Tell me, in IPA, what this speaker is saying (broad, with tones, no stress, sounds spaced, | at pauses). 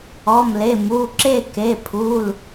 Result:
ɔ˩˧˩ m l e˩˧˩ m u˩˧˩ ǁ e˥˨ k e˩˧˩ pʰ u˩˧˩ l